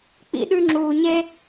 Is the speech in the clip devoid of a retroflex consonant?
yes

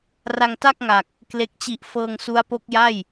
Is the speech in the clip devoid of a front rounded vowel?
yes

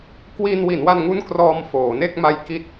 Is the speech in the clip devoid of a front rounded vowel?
yes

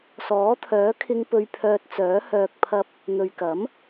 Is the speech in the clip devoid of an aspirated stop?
no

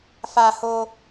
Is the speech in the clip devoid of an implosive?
yes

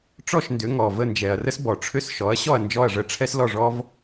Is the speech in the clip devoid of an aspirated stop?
no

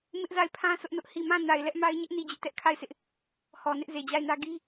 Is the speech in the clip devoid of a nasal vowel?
no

